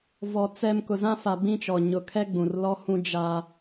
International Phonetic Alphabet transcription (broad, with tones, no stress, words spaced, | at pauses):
vɔ˨ t͡sɛ˦m kʊ˨zã˦fa˨ bĩ˦t͡ʃɔ˨ ɲʊ˨ kʰɛ˦ɡ͡bũ˨r lɔ˦hũ˦ d͡ʒa˦